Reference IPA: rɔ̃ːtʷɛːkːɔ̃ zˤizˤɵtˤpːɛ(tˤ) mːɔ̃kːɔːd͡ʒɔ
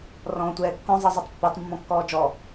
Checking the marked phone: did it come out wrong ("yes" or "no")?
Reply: no